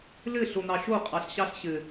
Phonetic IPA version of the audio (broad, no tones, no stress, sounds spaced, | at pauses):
l ɘ ɬ o n̪ ɑ ʃ o qʼ ɑ ɬ ɕ ɑ ɬ ɕ ɘ